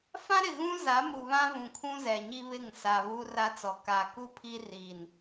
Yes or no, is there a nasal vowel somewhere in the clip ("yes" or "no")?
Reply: yes